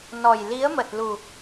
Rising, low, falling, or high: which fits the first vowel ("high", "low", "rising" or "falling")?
low